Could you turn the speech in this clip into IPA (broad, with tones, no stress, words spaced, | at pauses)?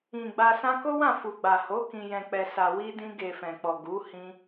ĩ˨ ɡ͡ba˧sã˦ ko˦wã˦˨fu˨ ɡ͡ba˨ho˨˦ kĩ˧jɛ̃˧k͡pɛ˧sa˧ wi˦dĩ˦ɡe˧ fɛ̃˨k͡pɔ˨ ɡu˨˦ hĩ˦